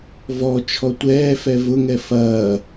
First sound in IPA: v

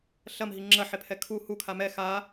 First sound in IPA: ɬ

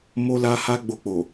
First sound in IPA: m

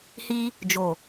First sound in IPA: h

